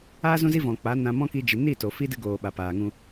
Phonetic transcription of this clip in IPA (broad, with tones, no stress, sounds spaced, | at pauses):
a˦ z ũ˦ z i˦ v ɔ̃˨ k͡p a˨˦ n ã˧ m ɔ̃˦ k i˧ d͡ʒ i˨ n i˦˨ t o˨ f i˦ d ɨ˧ ɡ oː˨ ɓ a˨ p aː˨ ŋ ũ˧